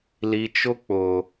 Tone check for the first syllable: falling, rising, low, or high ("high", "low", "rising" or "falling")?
low